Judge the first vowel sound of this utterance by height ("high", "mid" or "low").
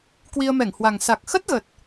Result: high